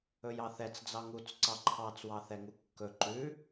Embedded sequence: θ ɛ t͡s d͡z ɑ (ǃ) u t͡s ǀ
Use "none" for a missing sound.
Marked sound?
ŋ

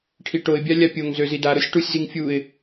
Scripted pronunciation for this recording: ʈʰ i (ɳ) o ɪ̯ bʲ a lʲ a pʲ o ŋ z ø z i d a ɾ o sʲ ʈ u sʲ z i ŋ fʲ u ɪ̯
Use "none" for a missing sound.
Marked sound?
ʈ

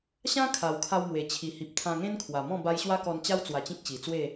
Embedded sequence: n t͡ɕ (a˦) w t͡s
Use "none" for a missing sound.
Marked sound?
a˦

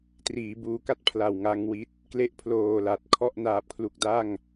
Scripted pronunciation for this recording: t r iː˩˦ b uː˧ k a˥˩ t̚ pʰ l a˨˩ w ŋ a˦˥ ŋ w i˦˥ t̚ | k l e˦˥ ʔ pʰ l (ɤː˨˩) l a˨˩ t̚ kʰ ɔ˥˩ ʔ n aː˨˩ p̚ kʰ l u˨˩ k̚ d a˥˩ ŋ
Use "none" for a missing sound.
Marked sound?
oː˨˩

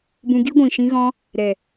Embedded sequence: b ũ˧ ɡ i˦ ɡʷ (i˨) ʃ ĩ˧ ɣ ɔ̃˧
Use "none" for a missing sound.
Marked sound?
ĩ˨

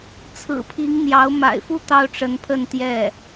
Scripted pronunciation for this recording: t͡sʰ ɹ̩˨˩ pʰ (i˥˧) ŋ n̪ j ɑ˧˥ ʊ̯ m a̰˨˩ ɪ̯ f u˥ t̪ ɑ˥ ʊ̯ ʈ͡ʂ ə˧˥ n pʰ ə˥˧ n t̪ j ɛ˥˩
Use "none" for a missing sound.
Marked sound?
i˧˥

